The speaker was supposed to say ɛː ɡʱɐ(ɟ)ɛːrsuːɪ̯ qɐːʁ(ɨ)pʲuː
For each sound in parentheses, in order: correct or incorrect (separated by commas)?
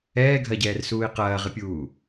correct, correct